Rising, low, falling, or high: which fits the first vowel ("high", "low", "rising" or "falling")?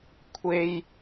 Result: high